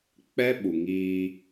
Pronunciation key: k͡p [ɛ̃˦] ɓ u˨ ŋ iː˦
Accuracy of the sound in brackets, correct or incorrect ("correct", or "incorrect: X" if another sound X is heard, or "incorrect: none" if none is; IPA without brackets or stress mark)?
incorrect: ɛ˦